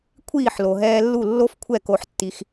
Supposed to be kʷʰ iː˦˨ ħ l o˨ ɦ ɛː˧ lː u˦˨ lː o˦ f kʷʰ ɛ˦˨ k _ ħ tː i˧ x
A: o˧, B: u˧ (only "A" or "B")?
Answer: A